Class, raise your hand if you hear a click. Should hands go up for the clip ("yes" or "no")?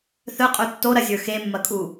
no